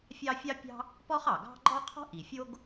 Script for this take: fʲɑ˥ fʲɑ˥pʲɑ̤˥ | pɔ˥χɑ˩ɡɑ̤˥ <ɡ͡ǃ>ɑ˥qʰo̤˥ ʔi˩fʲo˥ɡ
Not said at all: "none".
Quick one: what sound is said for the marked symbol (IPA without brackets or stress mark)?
ɡ͡ǃ